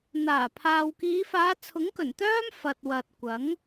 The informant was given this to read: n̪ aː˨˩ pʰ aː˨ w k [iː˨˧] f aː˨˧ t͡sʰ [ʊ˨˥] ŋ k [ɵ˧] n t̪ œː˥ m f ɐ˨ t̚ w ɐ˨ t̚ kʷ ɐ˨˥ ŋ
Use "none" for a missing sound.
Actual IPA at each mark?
iː˨˧, ʊ˨˥, ɵ˨˩

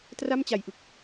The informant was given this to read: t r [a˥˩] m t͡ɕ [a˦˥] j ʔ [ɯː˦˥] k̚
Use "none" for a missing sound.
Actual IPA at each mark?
a˥˩, a˨˩, ɯ˦˥

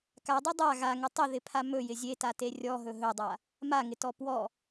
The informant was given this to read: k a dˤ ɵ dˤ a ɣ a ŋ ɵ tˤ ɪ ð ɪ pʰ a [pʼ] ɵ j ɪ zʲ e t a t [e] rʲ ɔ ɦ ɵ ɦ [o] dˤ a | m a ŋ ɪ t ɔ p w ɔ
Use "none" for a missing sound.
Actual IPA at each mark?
m, e, ɵ

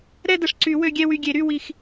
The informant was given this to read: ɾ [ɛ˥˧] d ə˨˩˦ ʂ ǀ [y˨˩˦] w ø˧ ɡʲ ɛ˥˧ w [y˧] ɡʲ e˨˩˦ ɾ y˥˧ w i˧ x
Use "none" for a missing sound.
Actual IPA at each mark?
ɛ˥˧, y˨˩˦, y˧

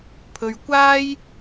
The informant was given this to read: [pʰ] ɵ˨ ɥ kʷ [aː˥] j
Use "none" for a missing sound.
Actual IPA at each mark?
pʰ, aː˥

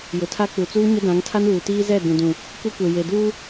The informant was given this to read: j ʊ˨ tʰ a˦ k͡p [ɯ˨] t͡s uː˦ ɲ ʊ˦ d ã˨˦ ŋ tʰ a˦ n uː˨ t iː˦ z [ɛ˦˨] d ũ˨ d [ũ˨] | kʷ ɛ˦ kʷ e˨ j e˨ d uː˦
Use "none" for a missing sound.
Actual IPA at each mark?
u˨, ɛ˦˨, ũ˨

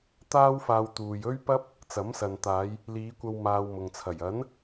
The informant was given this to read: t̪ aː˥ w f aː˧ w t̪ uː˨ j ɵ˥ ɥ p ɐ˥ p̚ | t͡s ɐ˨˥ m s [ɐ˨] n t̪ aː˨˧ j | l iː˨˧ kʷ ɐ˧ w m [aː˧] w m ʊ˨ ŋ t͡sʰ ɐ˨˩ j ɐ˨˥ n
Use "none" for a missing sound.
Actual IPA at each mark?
ɐ˨, aː˧

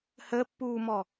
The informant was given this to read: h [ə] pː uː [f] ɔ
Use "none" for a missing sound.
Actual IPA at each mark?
ə, m

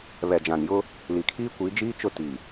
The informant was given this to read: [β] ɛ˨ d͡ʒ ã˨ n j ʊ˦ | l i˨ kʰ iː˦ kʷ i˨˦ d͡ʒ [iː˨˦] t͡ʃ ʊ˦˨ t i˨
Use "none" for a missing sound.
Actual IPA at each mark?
β, iː˦

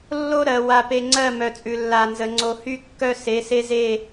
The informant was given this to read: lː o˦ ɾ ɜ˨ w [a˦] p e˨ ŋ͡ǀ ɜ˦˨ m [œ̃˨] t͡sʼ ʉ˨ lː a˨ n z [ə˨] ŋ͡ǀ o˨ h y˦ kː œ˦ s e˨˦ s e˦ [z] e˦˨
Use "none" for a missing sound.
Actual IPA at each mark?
a˨, œ˨, ə˨, z

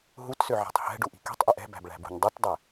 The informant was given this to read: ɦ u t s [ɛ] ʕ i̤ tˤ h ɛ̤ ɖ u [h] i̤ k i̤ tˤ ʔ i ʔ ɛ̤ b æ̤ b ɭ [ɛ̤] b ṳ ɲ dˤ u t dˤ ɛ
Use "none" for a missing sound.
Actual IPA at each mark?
ø, ʔ, æ̤

